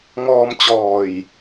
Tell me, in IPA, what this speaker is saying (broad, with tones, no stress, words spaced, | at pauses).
ŋɔː˧mt͡ɕɔː˨˩j